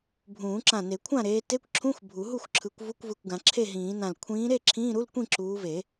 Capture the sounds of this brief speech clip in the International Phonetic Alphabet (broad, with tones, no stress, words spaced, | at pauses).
bʱũː˨˩˦ǁã˧˩ne˨˩˦ kʷʰã˥˨ɾeː˨˦te˧˥˧kʷǁʰũ˧˥˧xʷ bʱu˨˩˦ɦu˥˨xʷǁʰɯ˨˦kʷ vu˧˥˧kʷvɯ˧˩kʷɡã˨˩˦ ǁʰe˥˨ɦĩː˨˩˦nã˧˩l kʷʰĩː˨˦ɾe˥˨ ǁʰĩː˧˥˧ɾu˧˥˧lkʷĩ˥˨ ǁuː˨˦ve˨˩˦